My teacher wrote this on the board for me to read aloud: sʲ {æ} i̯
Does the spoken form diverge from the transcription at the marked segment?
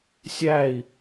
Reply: no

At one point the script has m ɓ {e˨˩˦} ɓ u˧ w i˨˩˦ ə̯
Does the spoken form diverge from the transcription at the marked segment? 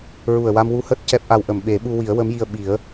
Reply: no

